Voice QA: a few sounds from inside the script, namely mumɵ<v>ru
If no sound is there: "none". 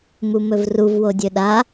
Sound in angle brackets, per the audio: v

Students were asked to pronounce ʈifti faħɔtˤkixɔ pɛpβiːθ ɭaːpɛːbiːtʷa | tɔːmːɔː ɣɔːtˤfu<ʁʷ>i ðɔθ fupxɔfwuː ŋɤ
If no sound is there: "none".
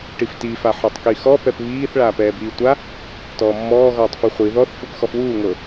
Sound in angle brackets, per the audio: χʷ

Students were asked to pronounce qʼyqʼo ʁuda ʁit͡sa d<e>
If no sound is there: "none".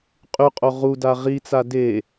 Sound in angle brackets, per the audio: e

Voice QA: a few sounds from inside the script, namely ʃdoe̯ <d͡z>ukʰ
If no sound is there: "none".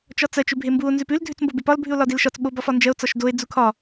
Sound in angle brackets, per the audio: d͡z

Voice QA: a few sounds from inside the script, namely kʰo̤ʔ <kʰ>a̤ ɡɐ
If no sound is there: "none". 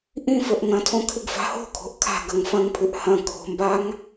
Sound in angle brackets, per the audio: kʰ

